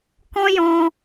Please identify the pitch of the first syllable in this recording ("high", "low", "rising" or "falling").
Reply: high